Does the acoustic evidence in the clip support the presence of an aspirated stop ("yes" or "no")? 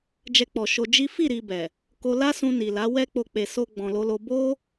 no